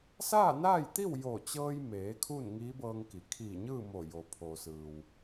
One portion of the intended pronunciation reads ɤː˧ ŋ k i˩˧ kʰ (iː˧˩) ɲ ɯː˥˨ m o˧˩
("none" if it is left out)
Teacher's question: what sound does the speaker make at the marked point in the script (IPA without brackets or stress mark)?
iː˧˩